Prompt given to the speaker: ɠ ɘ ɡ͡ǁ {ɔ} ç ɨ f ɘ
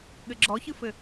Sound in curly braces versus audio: correct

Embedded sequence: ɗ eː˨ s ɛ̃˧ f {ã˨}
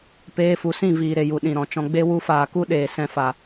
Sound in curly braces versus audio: incorrect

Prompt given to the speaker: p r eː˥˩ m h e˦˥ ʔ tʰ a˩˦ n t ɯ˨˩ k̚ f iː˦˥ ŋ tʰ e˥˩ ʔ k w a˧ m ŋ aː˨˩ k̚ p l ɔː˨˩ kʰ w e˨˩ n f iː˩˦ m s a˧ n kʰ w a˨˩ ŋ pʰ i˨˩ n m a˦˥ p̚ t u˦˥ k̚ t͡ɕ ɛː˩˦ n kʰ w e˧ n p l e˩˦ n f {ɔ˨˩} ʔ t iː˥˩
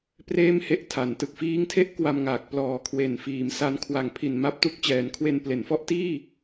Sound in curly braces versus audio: incorrect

